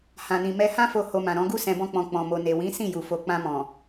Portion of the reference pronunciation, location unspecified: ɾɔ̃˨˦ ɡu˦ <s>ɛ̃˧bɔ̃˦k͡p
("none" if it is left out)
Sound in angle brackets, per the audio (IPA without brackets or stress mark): s